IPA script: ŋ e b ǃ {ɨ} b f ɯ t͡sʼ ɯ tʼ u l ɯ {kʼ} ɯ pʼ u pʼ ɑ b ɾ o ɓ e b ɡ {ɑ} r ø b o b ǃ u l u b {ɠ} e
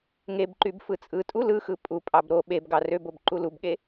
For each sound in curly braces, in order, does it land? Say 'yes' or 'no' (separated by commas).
no, no, yes, yes